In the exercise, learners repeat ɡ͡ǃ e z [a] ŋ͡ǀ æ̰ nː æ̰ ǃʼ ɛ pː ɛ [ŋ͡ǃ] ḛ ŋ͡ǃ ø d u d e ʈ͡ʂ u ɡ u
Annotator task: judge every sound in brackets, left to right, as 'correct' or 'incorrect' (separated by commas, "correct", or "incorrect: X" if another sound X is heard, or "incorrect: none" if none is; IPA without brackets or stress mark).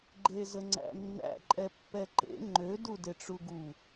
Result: incorrect: ə, incorrect: ǃ